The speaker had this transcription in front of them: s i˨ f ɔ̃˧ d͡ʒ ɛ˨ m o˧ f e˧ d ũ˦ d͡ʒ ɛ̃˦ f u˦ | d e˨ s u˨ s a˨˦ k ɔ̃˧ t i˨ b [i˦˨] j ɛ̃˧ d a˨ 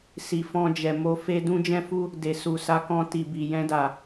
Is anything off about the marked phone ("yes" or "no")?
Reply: yes